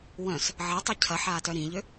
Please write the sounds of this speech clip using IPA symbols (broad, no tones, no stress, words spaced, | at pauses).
wœ̃s | ʕɐtˤy cʰɐħaːtœ ɾĩʎʏ